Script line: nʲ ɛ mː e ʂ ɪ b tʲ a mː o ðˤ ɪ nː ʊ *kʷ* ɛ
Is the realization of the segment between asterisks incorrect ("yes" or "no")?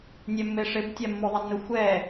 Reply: yes